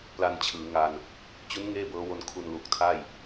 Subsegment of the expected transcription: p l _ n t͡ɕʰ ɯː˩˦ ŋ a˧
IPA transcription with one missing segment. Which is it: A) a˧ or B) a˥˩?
A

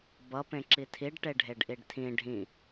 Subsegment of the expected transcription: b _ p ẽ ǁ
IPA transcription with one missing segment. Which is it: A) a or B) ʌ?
B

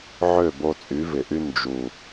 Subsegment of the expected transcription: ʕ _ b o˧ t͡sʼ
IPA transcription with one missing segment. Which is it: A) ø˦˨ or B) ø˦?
A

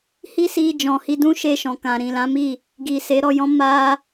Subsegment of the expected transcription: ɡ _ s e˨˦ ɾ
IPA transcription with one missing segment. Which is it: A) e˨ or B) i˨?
B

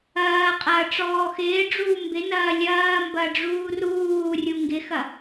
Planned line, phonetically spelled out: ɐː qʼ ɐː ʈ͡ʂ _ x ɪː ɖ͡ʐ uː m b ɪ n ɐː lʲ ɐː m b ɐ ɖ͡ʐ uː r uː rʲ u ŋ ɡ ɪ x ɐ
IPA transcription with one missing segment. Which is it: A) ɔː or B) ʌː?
A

